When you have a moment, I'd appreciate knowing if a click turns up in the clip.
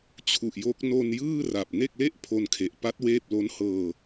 no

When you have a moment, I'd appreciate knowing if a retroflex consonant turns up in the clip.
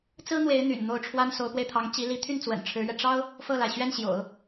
yes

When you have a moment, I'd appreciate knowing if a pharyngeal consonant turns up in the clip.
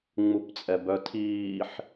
yes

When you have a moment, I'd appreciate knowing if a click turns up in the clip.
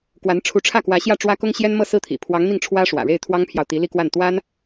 no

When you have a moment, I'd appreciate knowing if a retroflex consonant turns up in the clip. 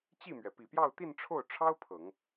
yes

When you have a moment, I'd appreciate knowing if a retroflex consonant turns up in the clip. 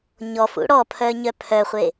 yes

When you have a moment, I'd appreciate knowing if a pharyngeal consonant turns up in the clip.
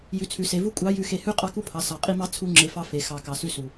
no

